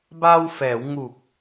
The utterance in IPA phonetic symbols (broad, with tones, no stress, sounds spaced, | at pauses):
b a˧ w f ɛː˩˦ w ŋ u˨˩ k̚